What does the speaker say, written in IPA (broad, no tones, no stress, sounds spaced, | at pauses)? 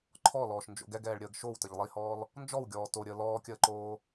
ǃʰ ɔ l ɔː ʃ n d͡ʒ o̰ ɡ ɛ ɡ ɛː ɭ ɾʲ əː ɡ ʃ o w t ə ʎ lˠ i h ɔː l | n d͡ʒ ɔ w ɡʲ ɔː t o ɾʲ əː l ɔː kʲ əː ǃ oː